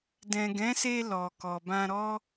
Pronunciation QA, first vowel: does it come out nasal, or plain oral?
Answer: nasal